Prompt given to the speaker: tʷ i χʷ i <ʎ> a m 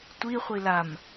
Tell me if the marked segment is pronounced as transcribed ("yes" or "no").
no